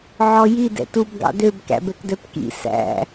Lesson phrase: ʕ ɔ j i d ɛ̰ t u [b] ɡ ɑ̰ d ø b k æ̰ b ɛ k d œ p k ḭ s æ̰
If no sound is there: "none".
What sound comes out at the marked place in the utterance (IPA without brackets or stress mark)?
b